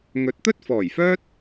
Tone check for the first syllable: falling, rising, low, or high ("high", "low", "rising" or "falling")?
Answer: rising